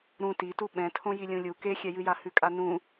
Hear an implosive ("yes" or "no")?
yes